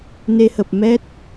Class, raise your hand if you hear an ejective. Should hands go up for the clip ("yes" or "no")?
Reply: no